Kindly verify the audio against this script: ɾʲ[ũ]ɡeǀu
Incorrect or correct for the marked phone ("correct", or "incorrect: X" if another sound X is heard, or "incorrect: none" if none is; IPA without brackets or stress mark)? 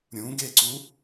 correct